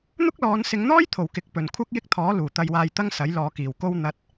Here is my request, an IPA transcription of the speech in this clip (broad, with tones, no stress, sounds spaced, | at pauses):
n̪ ʊ˥ k̚ l ɔː˨˧ n s ɪ˨˧ ŋ n̪ ɔː˥ j t̪ʰ o˨˩ w k ɪ˨ k̚ p ɵ˨˩ n kʷʰ ɐ˧ k̚ j ɪ˥ k̚ t̪ʰ ɔː˨˥ l uː˨˩ t̪ ɐ˧ j w aː˧ j t̪ ɐ˥ ŋ s ɐ˨˥ j l ɔː˨ k iː˨˩ w k o˧ w n̪ ɐ˧ t̚